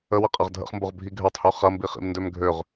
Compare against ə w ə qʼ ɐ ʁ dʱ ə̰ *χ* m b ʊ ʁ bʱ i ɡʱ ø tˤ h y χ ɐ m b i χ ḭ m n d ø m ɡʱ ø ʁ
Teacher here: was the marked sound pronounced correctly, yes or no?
yes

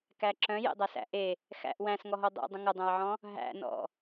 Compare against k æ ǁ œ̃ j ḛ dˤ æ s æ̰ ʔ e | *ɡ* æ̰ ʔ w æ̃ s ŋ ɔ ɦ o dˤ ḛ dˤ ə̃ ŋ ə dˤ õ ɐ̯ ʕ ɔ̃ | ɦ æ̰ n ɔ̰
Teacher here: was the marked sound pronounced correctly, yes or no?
no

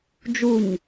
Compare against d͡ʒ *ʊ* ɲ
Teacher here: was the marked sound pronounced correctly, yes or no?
no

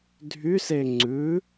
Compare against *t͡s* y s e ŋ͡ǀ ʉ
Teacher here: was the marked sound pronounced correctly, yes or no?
no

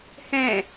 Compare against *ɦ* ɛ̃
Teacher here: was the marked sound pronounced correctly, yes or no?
no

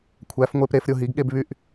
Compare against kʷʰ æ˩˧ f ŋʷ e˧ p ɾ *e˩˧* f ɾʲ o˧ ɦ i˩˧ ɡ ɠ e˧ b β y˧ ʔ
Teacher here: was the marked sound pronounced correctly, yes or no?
yes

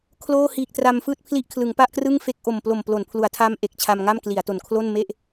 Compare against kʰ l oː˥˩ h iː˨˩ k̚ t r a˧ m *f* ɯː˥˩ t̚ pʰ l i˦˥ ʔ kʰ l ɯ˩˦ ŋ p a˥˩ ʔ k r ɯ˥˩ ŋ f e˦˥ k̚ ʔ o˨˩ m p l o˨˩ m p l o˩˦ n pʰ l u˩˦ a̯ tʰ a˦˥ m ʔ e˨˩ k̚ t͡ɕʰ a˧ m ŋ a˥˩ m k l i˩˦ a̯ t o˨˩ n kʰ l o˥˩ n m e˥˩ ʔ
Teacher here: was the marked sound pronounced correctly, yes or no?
yes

